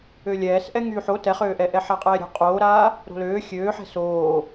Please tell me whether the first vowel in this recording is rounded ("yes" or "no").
yes